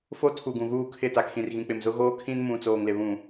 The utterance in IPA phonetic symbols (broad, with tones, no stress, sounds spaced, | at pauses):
f o˦ tʰ u˨ ɡ ũ˨ ɣ uː˦˨ kʰ ɪ˦˨ t a˨ kʰ ĩ˨ r ɣ ĩ˨ k͡p ɪ˨ m z ʊ˦ ɣ oː˦ kʰ ĩ˦ n m ũ˨ t͡s oː˨ ŋ l ɪ˨ β ũ˨